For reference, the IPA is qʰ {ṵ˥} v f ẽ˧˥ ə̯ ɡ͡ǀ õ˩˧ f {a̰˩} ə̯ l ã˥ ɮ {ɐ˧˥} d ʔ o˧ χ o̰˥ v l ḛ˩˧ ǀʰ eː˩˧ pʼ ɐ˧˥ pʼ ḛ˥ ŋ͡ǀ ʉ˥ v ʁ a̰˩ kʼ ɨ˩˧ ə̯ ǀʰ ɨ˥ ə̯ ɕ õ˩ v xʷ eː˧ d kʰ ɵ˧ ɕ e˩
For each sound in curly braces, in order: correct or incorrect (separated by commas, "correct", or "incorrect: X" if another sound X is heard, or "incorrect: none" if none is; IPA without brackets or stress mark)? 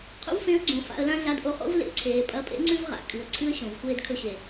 correct, incorrect: a̰˧, incorrect: a˧˥